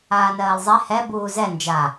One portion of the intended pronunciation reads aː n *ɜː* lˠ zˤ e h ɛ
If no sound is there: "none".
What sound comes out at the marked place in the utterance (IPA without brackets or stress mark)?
ɜː